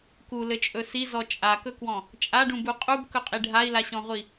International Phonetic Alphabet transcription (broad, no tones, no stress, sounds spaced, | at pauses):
k u l ɘ t͡ʃʼ ɵ s i z ɔ t͡ʃʼ a k ɵ k w ɔ̃ | t͡ʃʼ a ɖ ũ b u qʼ u b k ɵ qʼ i ɖʱ a i̯ l a ɕ ɔ̃ ʁʷ i